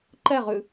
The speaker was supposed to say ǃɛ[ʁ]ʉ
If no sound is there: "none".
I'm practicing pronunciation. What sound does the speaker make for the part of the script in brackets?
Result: ʁ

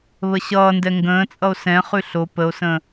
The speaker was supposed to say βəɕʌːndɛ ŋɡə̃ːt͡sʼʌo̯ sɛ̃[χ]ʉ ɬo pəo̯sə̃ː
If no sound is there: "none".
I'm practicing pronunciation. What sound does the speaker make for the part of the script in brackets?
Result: χ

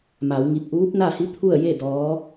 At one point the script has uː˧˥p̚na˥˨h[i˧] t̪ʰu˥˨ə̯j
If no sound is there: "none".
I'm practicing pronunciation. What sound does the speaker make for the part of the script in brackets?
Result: i˧˥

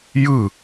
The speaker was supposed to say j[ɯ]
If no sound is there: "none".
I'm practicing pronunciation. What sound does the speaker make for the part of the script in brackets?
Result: ɯ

